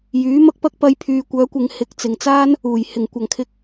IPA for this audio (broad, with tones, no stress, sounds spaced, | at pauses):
j yː˨˥ m ɐ˥ k̚ p ɐ˥ k̚ p ɐ˧ j pʰ yː˨ kʷ œː˨˧ kʷ ɪ˨ ŋ h ɪ˨˥ k̚ t͡s ɪ˨˩ ŋ t͡s aː˥ n | uː˨˩ j h ɪ˨˩ ŋ kʷ ɐ˨˩ ŋ kʰ ɪ˨˥ k̚